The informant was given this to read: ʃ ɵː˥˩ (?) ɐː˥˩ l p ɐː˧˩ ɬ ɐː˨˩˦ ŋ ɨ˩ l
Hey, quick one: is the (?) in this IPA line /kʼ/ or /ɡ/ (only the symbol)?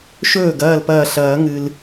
ɡ